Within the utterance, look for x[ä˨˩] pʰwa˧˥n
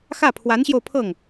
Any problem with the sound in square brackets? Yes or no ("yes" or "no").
yes